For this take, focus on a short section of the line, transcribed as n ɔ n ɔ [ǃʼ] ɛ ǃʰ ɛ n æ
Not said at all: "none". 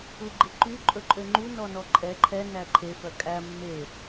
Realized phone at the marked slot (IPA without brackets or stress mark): ǃʼ